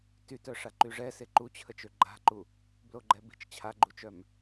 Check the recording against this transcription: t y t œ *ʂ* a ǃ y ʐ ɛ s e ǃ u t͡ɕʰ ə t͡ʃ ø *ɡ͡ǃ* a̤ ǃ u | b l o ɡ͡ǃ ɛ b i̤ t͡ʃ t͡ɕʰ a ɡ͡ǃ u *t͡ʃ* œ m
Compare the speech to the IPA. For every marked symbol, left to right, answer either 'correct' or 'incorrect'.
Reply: correct, correct, correct

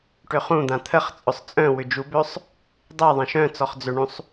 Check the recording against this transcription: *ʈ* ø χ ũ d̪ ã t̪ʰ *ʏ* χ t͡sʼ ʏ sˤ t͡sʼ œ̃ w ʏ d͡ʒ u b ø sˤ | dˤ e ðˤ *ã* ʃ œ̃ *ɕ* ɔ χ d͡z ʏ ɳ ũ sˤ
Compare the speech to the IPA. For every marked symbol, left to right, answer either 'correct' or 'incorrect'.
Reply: correct, incorrect: ə, correct, incorrect: t͡s

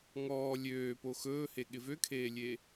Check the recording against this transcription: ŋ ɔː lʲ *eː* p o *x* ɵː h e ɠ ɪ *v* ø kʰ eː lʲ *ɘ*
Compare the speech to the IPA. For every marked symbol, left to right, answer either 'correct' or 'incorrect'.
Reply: incorrect: øː, correct, correct, incorrect: e

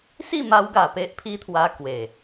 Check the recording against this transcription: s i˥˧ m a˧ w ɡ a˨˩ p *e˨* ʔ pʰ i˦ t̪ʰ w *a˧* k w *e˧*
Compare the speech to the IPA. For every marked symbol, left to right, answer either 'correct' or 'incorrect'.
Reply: incorrect: e˦, correct, incorrect: e˨˩

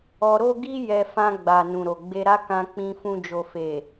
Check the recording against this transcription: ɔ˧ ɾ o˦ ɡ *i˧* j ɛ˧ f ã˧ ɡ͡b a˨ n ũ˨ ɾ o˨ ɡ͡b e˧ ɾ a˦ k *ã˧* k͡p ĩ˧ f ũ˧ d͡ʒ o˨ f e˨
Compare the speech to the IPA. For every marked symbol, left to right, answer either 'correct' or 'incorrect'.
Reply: incorrect: i˦, correct

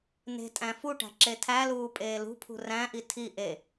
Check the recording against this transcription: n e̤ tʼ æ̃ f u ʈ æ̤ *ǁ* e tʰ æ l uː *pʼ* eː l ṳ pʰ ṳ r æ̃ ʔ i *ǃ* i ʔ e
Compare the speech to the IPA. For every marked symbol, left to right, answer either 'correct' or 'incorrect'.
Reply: correct, correct, incorrect: tʰ

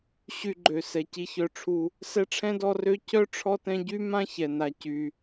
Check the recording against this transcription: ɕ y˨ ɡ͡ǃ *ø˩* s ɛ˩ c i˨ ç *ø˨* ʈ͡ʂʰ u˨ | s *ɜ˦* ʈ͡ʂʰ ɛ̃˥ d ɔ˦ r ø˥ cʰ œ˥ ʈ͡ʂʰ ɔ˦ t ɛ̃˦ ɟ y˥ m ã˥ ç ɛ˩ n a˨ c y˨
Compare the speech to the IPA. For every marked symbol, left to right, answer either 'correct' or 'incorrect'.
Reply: correct, incorrect: œ˨, incorrect: ɛ˦

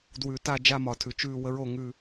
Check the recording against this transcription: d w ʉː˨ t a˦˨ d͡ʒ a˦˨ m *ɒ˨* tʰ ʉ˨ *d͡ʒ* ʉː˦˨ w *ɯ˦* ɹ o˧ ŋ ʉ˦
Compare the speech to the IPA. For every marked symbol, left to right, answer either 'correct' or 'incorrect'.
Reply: correct, incorrect: t͡ʃ, incorrect: ə˦

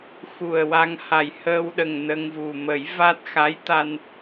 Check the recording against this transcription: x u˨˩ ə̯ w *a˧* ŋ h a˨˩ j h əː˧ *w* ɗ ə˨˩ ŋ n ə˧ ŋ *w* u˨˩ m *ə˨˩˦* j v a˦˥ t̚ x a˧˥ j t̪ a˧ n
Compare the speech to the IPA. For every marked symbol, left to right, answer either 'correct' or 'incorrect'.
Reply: correct, correct, incorrect: v, correct

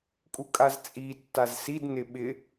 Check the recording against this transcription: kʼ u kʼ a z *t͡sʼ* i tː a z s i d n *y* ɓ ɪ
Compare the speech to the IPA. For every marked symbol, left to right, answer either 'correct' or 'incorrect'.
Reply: correct, incorrect: ɪ

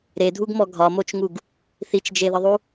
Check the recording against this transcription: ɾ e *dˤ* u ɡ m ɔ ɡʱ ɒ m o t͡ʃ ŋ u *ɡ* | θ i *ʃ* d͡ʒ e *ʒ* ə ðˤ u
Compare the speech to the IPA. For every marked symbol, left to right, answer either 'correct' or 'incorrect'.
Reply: incorrect: dʱ, correct, incorrect: t͡ʃ, incorrect: ð

